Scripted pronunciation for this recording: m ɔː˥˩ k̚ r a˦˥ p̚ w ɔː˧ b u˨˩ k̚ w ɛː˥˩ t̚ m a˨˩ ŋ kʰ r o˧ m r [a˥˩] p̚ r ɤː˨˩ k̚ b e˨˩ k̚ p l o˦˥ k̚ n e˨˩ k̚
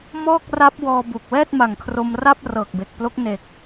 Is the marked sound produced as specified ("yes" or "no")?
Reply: yes